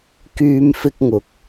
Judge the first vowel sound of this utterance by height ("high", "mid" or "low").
high